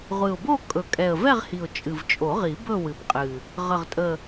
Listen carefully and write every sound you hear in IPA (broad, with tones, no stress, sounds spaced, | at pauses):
ʁʷ ɨ˨˩ ʊ̯ b o˥˧ kʼ ɵ˨˩ kʼ ɛ˨˩ ə̯ v ɛ˥˧ ʁ h i˨˩ ʊ̯ t͡ʃʼ ɨ˨˩ v t͡ʃʼ o˨˩˦ ʁ i˨˩˦ b ɵ˥˧ w ɨ˨˩ b qʼ ɨ˨˩ | ʁ ə˨˩ ʁ tʼ ə˨˩